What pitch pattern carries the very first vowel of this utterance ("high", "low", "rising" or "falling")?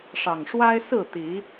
low